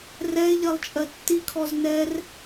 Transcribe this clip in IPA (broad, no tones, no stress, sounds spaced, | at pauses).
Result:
r ɛ e̯ ʎ ɜ lˠ t͡ʃʼ ɜ tː i kʰ ɔ z n ɛ r